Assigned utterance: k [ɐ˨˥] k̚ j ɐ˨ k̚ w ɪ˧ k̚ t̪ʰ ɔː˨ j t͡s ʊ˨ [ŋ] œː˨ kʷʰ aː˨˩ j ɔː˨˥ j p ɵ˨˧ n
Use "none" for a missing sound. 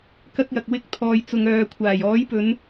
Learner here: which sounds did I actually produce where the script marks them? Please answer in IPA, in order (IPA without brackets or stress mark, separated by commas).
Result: ɐ˧, ŋ